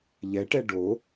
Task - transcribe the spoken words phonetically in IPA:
ʎɛʈɛ ɖo

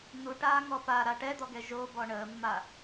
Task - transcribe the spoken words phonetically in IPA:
n̪uʈaːŋɔ paɾa ʈɛd̪ɔɡɛ ʒobɔ ɳəːmːa

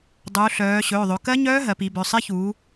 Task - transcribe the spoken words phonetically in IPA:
dˤuː˩˧ɬœː˩˧ɕɵː˩˧˩ ðˤɵ˩˧kɜ˦˥ɲœː˦˥ ɦɜ˩˧pi˩˧bœ˩˧˩ sˤe˦˥çuː˩˧

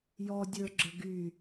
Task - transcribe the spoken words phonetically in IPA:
jɔ dʲə˞ɡ͡ǁə ɡy

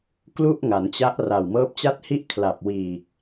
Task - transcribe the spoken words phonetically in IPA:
klu˥˩ʔŋa˩˦nt͡ɕa˦˥ʔ ra˨˩wmɤː˦˥p̚t͡ɕa˥˩t̚ hi˥˩ʔkʰla˨˩p̚ wiː˨˩k̚

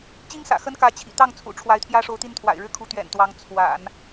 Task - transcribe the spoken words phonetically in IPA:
t͡ɕi˥ŋsä̰˨˩ xə˥nkä˧˥ t͡ɕʰḭ˨˩ t̪ɑ˥˩ŋt͡sʰṵ˨˩ ʈ͡ʂʰwa˧˥ɪ̯t̪ʰjä˥ʂo˧˥ʊ̯t̪i˥˩n t̪ʰwa̰˨˩ɪ̯ɻɻ̩˥˩kʰu˧˥ t̪ɥɛ̰˨˩nt̪wɑ˧˥ŋ t͡sʰwa̰˨˩˦n

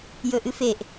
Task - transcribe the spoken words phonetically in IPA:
jɵʔɨfeʔ

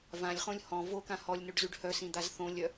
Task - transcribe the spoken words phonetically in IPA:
vãlʲχõlʲ hɔ̃ vokã hɔlʲnoɖzyɖ hœsĩd̪az θõlʲœ

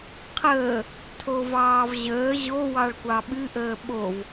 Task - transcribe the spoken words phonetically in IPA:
qʰəː | tʰovɑːvʑəː ʑo wɑɭkʷɑɓɨ ʔəːɓov

